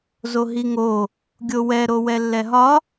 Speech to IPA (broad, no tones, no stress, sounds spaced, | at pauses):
z o ɦ i ŋ o | ɡʲ o w ɛ ɾ o w ɛ lː ɛ ɦ ɒ